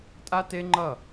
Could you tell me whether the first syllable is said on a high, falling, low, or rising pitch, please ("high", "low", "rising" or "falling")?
high